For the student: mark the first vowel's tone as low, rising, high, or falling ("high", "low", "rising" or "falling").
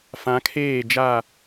rising